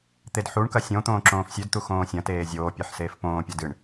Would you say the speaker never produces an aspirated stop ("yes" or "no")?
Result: yes